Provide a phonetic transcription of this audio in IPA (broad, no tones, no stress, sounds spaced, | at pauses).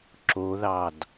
ǁ o ð ɑ d